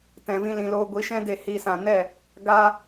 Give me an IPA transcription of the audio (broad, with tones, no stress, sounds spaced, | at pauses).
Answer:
t ɛ̃˨ v ĩ˧ l ĩ˨ l oː˧ ɡʷ i˨˦ ʃ ɛ̃˦ d e˧ h i˧ s ã˨ n ɛ˦˨ | ɡ a˦